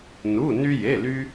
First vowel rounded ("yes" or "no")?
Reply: yes